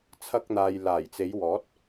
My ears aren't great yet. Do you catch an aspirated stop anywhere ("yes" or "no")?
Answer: yes